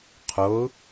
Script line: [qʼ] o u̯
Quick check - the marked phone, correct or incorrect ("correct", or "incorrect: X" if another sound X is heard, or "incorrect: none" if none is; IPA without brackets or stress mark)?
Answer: incorrect: qʰ